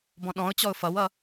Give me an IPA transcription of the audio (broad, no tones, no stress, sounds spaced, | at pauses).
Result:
b ɔ̃ ɗ ɔ̃ ʊ̯ t͡ɕ ɔ ʊ̯ f ʌ w ʌ